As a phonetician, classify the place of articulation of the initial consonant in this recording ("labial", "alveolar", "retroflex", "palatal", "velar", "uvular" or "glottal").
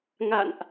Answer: velar